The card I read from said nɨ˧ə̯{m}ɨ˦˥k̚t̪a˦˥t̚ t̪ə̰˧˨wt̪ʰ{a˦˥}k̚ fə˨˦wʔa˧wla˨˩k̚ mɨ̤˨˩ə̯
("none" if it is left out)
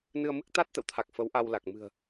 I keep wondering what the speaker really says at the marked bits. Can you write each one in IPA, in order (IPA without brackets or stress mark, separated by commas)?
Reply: m, a˨˩